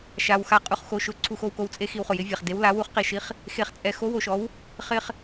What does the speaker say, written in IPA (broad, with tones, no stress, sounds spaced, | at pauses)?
ʃ a˧ w x a˧˥ qʼ u˧ χ x o˧ ʃ ʊ˧ ǀʰ u˧ x o˧ w k o˧ w t͡sʼ e˧˥ x i˧˥ w χ ʊ˧ j ɪ˧˥ vʲ a˧ χ d e˧˥ w l a˧˥ w u˧˥ χ q i˧ ʃ i˧˥ χ | x e˧ χ t͡sʼ ɛ˧ x o˧˥ w o˧ ʃ ɔ˧˥ w | χ ɪ˧ χ